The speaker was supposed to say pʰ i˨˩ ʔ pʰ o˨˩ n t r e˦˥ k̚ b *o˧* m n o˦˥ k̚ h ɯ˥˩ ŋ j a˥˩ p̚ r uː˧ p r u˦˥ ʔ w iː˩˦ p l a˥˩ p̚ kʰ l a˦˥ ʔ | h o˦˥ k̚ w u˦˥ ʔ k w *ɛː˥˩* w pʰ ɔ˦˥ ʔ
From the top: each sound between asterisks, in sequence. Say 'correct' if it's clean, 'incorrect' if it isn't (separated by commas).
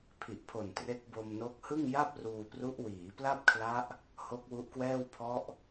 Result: correct, correct